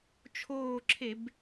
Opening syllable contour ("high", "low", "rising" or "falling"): falling